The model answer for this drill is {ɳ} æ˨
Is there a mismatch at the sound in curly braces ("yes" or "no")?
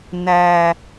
yes